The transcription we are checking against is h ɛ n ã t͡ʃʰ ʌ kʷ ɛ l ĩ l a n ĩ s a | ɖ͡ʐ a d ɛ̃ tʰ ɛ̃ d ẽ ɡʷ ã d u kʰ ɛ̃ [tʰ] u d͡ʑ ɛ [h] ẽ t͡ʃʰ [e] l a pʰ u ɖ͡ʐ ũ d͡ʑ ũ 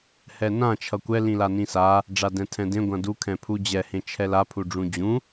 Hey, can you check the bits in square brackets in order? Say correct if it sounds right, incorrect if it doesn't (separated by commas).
incorrect, correct, incorrect